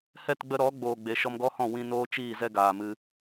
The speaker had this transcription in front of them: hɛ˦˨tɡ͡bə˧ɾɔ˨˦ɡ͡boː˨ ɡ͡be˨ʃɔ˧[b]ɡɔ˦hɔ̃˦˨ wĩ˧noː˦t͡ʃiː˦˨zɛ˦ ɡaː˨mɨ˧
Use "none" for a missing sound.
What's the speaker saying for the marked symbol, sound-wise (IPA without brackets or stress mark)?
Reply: m